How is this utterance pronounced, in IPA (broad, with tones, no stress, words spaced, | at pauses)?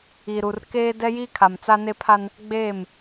i˨ɾu˨r keː˦ dɛ˦jiː˦kʰa˨m t͡sa˦ne˦pʰa˦n | ɡ͡beː˦˨m